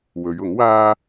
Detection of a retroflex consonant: absent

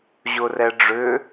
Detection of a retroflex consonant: present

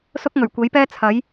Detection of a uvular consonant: absent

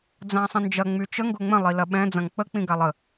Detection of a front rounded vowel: present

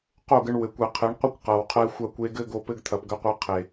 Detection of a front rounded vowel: absent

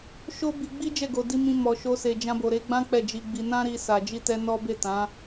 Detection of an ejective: absent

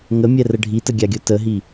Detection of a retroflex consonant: present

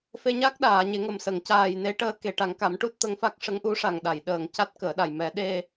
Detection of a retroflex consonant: present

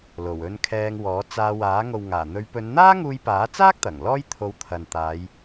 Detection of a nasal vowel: absent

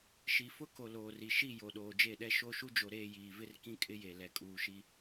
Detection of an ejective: present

